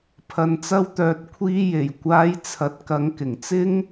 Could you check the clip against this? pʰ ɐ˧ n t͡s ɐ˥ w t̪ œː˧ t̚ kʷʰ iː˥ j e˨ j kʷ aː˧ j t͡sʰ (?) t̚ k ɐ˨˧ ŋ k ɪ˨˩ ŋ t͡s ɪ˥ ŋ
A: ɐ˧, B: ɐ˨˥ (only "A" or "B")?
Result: B